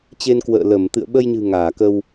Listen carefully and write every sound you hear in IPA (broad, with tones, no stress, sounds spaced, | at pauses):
t͡ɕ e˧ n k w ə̰ː˧˨ l ə˧˩ m t̪ ɨ̰˧˨ ə̯ ɓ ə˧ j ɲ ɨ̤˨˩ ŋ aː˧˩ k ə˧ w